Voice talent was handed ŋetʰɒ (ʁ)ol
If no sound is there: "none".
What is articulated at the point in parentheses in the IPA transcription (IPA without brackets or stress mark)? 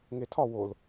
w